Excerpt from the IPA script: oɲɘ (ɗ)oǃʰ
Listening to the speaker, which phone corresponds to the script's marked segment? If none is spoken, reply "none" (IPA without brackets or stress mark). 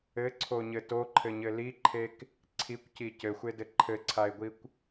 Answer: t